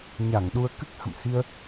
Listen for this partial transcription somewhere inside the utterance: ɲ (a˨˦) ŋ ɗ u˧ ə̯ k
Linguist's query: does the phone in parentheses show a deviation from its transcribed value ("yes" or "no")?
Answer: yes